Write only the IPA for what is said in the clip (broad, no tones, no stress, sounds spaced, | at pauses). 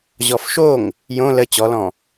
ʑ ɔ f ʃ o ŋ | j õ l ə t͡ɕ ɔ l ɔ̃